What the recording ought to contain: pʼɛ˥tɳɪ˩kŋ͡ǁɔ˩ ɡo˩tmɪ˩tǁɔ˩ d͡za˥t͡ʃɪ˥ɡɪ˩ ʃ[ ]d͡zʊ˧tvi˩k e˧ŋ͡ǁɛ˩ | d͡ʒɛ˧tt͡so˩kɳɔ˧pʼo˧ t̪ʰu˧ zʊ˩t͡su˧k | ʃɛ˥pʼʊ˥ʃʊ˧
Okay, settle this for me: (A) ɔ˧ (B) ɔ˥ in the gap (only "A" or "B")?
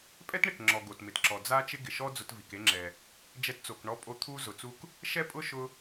B